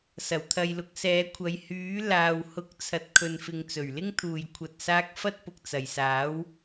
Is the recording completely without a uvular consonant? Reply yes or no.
yes